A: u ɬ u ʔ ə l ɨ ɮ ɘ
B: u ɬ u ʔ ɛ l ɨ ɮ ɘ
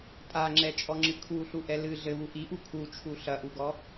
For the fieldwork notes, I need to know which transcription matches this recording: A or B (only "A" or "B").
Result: B